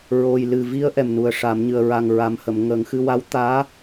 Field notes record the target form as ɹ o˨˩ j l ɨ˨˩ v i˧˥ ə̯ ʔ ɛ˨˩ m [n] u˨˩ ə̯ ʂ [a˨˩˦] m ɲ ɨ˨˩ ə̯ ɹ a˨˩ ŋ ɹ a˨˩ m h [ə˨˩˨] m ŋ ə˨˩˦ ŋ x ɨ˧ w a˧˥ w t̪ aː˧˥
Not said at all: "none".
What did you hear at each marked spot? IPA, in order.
n, a˨˩˦, ə˨˩˨

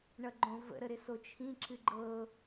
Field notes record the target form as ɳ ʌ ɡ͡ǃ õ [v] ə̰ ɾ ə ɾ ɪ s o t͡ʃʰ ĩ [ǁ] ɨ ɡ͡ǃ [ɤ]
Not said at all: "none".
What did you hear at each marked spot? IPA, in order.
v, ǁ, ɤ

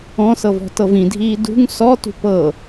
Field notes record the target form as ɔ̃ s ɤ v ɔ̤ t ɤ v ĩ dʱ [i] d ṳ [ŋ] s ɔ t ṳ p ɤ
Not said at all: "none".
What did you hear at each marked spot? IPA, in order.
iː, ŋ

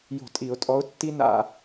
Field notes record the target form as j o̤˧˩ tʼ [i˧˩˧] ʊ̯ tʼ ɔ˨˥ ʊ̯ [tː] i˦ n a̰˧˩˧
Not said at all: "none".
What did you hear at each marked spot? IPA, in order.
i˧˩˧, tː

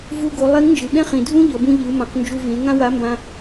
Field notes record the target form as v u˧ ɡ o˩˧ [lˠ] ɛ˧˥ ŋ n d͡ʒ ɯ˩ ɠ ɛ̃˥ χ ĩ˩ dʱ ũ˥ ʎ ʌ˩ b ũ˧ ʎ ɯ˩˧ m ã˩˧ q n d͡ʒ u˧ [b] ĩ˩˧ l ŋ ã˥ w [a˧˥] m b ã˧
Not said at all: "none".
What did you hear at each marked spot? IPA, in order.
lˠ, v, a˧˥

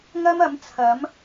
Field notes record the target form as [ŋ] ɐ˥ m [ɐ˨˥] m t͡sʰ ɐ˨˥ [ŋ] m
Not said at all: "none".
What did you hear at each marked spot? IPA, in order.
ŋ, ɐ˨˥, none

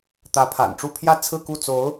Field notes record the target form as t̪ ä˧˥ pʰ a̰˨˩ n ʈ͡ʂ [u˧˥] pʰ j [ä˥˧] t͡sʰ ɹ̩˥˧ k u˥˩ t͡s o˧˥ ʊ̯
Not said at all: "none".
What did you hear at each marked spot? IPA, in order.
u˥˧, ä˥˧

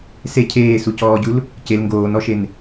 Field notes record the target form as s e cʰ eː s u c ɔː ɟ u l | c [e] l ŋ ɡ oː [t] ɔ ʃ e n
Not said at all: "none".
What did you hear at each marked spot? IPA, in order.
e, n

